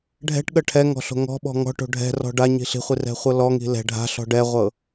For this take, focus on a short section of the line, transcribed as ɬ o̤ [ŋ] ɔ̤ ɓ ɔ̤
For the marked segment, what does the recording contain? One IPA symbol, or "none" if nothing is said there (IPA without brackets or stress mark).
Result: ŋ